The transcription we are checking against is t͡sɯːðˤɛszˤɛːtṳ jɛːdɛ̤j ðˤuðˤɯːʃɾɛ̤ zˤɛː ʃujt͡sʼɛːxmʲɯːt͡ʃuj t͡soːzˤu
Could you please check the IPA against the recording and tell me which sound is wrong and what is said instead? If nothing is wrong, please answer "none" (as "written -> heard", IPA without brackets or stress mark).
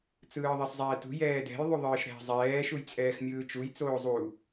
none